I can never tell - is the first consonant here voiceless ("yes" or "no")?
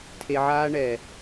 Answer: yes